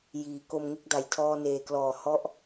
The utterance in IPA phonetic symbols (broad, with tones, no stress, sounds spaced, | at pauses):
j iː˩˦ k o˧ m ŋ e˥˩ k̚ d a˨˩ j tʰ ɔː˧ n eː˨˩ k l ɔː˨˩ h ɔ˦˥ ʔ